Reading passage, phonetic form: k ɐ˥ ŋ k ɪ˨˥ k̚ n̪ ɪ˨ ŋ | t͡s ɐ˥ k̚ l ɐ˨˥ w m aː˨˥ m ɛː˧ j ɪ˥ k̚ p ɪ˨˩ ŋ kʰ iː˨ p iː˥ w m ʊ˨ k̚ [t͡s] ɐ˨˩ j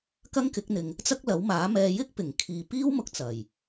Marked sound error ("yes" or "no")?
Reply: no